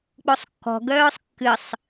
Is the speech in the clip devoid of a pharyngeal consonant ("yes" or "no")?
yes